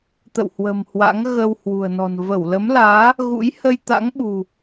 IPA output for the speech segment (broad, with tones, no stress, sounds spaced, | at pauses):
t̪ ə̰˧˨ w h w ə̤˨˩ m h w a̰˧˥ ŋ ɣ ə˧ w h w ṳ˨˩ ə̯ n ɔ̤˨˩ n v ə˧˩ w l ə˨˦ m l aː˨˦ | ɣ ṵ˧˥ j h ə˧ j t̪ a̰˧˥ ŋ ɓ ṳ˨˩